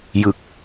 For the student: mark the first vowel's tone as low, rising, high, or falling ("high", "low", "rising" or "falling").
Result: low